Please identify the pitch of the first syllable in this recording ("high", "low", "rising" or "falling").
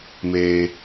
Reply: low